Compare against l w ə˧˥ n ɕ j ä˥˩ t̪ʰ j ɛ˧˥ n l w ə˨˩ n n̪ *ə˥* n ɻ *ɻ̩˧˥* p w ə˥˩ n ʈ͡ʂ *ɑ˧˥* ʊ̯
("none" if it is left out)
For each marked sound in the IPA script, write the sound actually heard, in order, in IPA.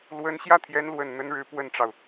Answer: ə˥, ɻ̩˥, ɑ˩

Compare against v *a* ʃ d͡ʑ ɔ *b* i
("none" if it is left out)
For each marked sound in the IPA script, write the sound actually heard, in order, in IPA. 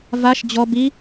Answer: a, b

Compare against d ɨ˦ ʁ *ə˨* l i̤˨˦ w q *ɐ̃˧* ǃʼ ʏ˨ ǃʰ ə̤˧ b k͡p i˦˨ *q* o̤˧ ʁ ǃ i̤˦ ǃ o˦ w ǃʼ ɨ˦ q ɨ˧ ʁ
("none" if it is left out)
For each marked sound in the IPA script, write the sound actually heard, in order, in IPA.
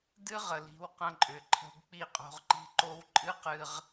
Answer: ə˨, ɐ̃˧, qʼ

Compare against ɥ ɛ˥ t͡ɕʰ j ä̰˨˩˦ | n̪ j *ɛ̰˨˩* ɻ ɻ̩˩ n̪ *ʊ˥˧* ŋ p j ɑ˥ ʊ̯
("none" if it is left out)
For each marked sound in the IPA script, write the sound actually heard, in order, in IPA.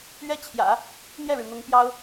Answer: ɛ˥˩, ʊ˧˥

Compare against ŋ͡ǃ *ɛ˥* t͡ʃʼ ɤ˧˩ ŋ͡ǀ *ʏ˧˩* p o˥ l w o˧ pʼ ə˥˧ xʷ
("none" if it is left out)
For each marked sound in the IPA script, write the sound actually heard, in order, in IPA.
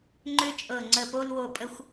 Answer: ʏ˥, ə˧˩

